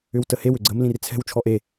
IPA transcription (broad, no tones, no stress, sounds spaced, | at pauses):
ʏ w t ə h e w ʏ ɡ͡ǀ ə m l ĩ r t͡sʰ ɛ̤ w t͡ʃʰ ɔ ʔ e